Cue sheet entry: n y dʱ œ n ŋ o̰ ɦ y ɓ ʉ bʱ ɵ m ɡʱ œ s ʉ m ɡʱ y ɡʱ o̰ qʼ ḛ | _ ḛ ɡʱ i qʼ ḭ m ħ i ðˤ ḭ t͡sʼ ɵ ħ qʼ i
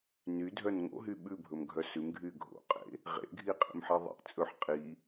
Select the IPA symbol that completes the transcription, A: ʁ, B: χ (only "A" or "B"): A